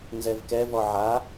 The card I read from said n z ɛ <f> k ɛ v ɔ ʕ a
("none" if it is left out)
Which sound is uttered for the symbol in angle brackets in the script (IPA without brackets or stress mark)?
v